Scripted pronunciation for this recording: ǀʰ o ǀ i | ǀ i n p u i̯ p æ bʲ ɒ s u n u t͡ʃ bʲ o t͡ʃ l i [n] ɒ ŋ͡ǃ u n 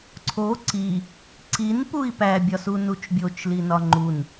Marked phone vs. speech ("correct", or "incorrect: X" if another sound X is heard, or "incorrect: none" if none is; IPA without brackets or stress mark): correct